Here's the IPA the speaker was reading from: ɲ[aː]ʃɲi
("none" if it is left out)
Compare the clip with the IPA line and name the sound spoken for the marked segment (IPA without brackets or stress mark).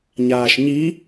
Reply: aː